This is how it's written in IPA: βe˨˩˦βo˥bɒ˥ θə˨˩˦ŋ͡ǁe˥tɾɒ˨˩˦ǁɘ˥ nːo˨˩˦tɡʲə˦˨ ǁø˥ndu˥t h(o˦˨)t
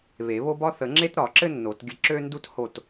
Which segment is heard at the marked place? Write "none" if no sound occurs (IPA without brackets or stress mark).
o˦˨